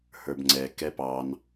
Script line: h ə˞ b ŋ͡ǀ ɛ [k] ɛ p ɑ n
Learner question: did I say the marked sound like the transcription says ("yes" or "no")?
yes